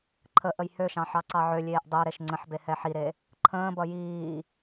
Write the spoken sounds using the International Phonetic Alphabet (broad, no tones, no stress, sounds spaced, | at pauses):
ǃʰ ə ʔ ə j h ø ʃ ɑ̃ ħ ɑ ǀ ɑ ʕ ø lʲ eː ʔ dˤ ø ɾ e ʃ ŋ͡ǀ ə̃ ħ b e h ɛ ħ i ɾ e | ǃʰ ə̃ː b ʌ j iː